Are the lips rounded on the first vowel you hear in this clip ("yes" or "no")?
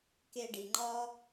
no